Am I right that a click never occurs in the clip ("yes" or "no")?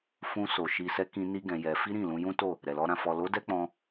yes